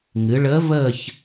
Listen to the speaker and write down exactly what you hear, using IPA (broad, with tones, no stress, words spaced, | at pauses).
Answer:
ŋɨ˩˧ɭəː˧˥vəː˥˧ç